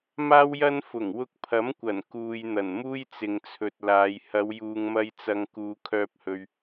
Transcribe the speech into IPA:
m aː˥ w j ɐ˥ n f ʊ˨˩ ŋ w ʊ˧ k̚ pʰ ɐ˨˥ m kʷ ɐ˨˩ n k uː˨ j n̪ ɐ˨˩ n m uː˥ j t͡s ɪ˨ ŋ t͡sʰ ɵ˨ t̚ l aː˨˧ j h ɐ˨˧ w j uː˨ ŋ m ɐ˧ j t͡s ɐ˨ ŋ k uː˨˧ kʰ œː˧ p̚ h ɵ˨ ɥ

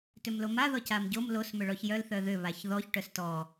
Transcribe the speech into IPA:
t ʏ m l o m a ð ɔ c a m ɟ o m l o s m ʏ ɭ ɔ ç j œ l θ œ ð ʏ β a ç ð ɔ ç ʈ œ s t ɔ

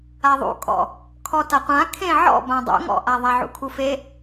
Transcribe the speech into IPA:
a ðˤ ṵ kʼ ɔ̰ | kʰ ɔ t a qʷ ã kʰ ẽ ʕ ɔ̰ b ã dˤ ṵ ŋ ɔ̰ ʔ a ðˤ a ʕ ṵ kʰ u f e

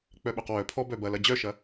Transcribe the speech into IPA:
k͡p œ ɓ œ q w œ pʰ ɔ b œ b ɐ l ɐ d͡ʑ œ ʃ ɐ

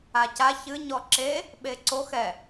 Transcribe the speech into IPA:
a c a ç ɨ ɲ ɔ ǁ e | ɓ e ǀ o x ɛ

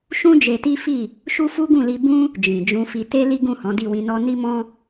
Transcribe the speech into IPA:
ʃ ũ˦ d͡ʒ e˧ t i˦ f i˦˨ | ʃ u˦ f u˦ ɡ ũ˦˨ l i˧ b ũ˦ | d͡ʒ ĩ˨ d͡ʒ ũ˧ f i˧ t e˦ l i˦ ɡ ũ˦˨ h ɔ̃˨˦ d i˦˨ w ĩ˧ n ɔ˦ n i˦ m ɔ̃˦

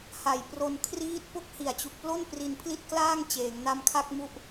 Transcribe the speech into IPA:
h a˨˩ j p r o˧ n kʰ r iː˥˩ t̚ p o˥˩ k̚ h i˨˩ a̯ t͡ɕ u˨˩ k̚ p l o˥˩ n p r i˧ n pʰ l i˥˩ t̚ k l aː˥˩ ŋ t͡ɕ eː˩˦ ŋ n a˧ m kʰ a˥˩ k̚ m u˥˩ ʔ

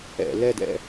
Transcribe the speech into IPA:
ɛ̰˧˩˧ l ɛ˥˧ d ɛ̰˥˧

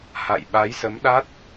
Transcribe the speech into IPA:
h a̰˧˨ j ɓ a˨˦ j s ə˨˦ m ɗ a˦˥ t̚

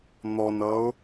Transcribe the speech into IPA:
n̪ ɔ n ʌ ʊ̯

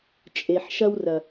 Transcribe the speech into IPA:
t͡ʃʼ e˩ ħ ʃ ɐ˧ w r ɐ˩

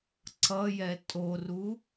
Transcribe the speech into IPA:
ǀ ʌ j ɛ tʼ o r u

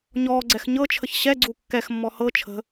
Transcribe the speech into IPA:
ɲ ɔː ɡ͡ǀ ɛ x ɲ ɤ t͡ʃʰ ə ç ɕ ɛ ɡ͡ǀ u kː ɛ x mː ɔ h ɤ t͡ʃʰ ə̤

